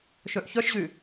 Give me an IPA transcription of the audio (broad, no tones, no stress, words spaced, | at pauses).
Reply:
ʃøʔçœʃʑy